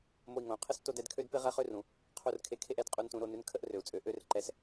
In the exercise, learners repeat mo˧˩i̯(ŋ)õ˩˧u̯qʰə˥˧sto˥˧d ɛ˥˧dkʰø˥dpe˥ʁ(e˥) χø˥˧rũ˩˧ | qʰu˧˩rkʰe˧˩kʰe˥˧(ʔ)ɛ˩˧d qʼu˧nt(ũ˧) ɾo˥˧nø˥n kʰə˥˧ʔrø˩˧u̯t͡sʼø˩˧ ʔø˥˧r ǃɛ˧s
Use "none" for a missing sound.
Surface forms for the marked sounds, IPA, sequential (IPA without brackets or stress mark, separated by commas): ŋ, ɛ˥, ʔ, ũ˧